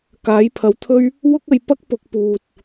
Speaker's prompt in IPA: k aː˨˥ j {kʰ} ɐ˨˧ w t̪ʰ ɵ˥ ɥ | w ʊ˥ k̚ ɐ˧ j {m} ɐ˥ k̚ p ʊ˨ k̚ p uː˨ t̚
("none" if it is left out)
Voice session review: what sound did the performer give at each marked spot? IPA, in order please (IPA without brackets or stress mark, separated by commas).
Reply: pʰ, p